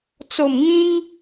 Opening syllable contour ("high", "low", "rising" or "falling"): low